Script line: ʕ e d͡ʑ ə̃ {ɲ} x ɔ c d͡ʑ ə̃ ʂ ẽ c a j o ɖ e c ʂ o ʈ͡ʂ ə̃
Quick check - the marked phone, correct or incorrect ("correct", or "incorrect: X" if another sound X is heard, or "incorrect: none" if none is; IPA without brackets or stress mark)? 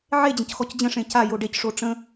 incorrect: c